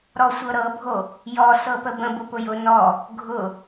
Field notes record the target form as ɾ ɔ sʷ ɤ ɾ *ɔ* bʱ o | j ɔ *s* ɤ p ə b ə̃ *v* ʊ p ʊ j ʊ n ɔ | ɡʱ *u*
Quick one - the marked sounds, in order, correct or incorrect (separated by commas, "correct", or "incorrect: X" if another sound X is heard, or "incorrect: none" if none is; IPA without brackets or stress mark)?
incorrect: ɤ, correct, incorrect: b, incorrect: ʊ